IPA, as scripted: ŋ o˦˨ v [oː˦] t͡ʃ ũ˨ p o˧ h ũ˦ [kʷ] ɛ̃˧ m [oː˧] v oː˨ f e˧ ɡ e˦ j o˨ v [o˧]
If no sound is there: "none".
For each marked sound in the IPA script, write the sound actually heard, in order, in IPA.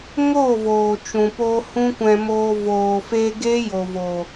oː˨, kʷ, oː˧, o˨

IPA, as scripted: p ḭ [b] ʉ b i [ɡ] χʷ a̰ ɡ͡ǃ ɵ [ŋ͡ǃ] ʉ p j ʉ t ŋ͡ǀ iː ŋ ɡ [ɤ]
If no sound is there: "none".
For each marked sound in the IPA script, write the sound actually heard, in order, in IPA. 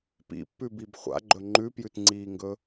pː, b, ŋ͡ǃ, ɵ

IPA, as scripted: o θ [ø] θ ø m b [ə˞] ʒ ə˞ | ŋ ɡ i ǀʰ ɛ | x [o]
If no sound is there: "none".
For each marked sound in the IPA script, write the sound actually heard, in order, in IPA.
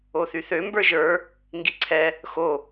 y, ə˞, o

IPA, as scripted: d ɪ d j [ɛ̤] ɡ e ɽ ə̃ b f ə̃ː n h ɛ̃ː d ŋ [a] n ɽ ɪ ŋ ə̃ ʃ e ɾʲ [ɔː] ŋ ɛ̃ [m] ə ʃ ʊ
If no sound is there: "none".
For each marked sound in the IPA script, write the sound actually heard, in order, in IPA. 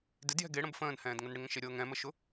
ɛ̤, ə, ɤː, m

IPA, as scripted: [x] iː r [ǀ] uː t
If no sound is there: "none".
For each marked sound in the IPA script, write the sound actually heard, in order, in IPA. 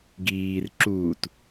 ɡ, ǁ

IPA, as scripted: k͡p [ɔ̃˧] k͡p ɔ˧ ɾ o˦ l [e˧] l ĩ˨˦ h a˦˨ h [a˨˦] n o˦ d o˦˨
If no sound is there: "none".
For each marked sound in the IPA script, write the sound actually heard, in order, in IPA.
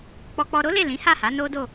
ɔ˧, e˦˨, a˨˦

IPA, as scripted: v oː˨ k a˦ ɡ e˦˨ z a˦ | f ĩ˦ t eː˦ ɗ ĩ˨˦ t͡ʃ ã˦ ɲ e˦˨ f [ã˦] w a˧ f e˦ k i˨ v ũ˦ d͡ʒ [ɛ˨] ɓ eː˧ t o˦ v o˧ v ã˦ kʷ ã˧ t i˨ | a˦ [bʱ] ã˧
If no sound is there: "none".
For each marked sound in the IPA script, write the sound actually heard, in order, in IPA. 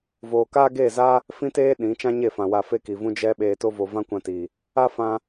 ã˨, ɛ˦, f

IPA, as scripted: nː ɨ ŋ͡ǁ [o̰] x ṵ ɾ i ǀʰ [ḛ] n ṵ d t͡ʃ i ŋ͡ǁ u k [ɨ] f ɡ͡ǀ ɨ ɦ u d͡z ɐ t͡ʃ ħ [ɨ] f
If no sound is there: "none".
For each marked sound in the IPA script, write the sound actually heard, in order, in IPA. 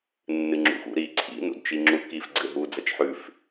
ṵ, ḭ, i, ʉ

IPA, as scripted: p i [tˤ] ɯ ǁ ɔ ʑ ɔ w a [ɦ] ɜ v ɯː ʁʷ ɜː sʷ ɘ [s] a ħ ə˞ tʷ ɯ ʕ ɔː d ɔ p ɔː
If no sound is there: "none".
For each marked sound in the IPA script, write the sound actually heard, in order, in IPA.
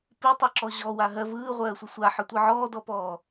tˤ, ɦ, sʷ

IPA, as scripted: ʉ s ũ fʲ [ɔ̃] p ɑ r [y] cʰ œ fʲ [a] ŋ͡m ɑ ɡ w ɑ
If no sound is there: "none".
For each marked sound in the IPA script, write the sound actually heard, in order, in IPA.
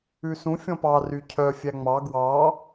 ɔ̃, y, æ

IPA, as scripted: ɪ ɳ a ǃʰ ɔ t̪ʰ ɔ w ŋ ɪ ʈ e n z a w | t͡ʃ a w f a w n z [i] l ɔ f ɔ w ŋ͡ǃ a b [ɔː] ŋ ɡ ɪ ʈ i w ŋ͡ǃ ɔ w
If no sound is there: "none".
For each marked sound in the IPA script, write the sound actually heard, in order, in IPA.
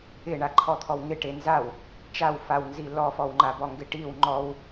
i, ɔ

